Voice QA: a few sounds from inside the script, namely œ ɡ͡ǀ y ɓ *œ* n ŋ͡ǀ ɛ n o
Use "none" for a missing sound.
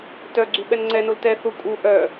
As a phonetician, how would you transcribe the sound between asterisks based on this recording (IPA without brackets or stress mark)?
ɛ